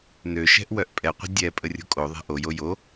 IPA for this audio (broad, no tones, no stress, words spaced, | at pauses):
nøʃɛ̤ʔ wœʔpʼɛqʷə̤ dʲɛ pʼərʲo̤kʼoðˤɛ̤ ʔojo jo